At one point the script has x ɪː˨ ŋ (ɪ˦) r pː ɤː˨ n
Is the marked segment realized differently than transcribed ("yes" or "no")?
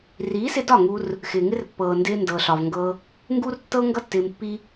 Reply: no